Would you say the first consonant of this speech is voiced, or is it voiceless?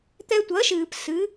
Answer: voiceless